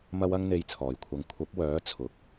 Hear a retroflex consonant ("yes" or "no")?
no